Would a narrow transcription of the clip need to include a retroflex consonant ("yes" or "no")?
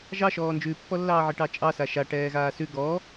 yes